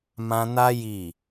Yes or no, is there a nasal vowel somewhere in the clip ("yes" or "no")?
yes